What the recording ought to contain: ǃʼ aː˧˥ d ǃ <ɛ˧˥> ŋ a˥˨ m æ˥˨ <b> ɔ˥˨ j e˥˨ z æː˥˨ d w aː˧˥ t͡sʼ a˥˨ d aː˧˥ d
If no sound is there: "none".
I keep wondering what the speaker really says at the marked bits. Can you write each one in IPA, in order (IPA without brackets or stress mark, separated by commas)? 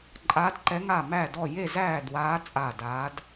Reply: ɛ˧˥, d